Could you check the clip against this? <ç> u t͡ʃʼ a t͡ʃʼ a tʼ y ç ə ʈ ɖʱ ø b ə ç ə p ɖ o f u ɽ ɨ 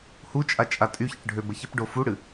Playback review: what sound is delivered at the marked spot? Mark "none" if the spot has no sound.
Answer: h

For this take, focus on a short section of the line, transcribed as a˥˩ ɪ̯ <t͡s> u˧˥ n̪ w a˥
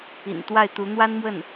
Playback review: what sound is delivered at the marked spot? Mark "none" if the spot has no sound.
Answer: t̪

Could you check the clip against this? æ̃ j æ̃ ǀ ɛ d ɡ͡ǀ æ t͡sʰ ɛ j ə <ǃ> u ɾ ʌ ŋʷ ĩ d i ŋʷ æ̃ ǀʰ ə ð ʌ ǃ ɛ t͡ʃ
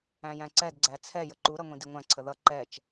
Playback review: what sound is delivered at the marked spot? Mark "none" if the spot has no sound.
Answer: ǃ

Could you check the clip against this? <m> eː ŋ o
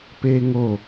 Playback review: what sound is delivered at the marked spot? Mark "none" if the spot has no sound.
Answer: p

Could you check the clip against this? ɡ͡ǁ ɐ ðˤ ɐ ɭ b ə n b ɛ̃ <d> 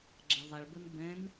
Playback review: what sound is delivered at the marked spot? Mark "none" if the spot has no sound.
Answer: n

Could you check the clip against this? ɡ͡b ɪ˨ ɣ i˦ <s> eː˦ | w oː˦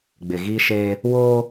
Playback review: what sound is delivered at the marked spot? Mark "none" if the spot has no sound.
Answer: ʃ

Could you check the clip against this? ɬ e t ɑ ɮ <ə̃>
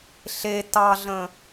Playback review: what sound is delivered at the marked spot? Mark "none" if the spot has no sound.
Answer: ə̃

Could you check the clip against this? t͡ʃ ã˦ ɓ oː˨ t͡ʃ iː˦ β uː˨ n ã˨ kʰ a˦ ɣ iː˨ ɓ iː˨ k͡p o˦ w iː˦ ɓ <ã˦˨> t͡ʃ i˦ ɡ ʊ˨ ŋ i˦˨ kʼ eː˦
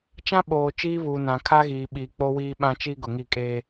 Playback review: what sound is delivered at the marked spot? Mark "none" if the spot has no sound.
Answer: ã˦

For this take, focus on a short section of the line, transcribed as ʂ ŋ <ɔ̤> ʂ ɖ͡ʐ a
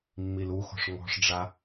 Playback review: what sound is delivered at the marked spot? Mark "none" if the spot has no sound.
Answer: ɔ̤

